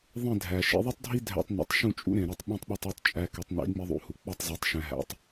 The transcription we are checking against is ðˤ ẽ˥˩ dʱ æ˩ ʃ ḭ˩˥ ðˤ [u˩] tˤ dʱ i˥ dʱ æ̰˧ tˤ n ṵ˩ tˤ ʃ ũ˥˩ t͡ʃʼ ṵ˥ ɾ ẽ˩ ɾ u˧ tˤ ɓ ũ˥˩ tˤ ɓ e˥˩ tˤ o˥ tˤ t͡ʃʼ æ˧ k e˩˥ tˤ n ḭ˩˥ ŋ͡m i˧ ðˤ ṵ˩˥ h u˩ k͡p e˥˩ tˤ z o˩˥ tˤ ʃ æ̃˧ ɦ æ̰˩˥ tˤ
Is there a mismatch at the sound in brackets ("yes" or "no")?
yes